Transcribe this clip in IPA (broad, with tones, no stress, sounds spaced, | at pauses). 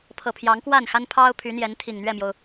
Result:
pʰ ɤ˨˩ pʰ j ɑ˨˦ ŋ k w a˥˨ n x a˦ n pʰ ɑ˦ ʊ̯ pʰ y˨˦ n̪ j ɛ˨˦ n t̪ʰ i˨˩ ŋ n̪ ɥ ɛ˥˨ m j o˩ ʊ̯